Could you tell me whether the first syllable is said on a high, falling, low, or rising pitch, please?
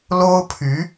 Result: high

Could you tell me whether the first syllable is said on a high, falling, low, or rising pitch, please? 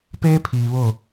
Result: high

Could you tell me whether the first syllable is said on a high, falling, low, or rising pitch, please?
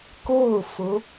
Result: falling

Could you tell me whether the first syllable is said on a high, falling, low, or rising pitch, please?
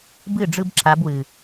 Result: falling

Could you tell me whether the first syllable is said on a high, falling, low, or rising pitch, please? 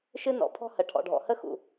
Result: high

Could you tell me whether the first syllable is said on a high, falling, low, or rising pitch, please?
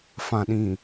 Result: low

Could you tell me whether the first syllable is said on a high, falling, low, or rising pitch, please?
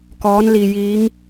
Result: rising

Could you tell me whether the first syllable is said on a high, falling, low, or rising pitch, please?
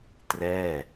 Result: falling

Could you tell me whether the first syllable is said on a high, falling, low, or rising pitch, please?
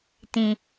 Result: low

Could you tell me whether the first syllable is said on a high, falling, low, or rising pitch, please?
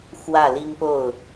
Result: falling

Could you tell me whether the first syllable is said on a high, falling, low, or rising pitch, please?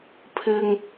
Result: low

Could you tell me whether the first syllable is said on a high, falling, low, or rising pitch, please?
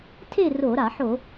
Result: falling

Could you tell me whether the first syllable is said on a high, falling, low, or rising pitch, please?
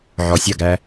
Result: low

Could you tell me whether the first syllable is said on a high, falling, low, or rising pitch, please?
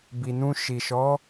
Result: low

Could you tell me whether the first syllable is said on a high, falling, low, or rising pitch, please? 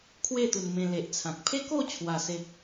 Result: falling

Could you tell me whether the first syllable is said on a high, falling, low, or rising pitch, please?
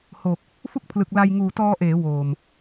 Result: low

